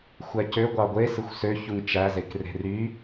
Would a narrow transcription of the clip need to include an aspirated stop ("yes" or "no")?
no